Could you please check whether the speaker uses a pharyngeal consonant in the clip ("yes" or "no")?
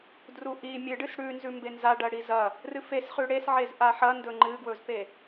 yes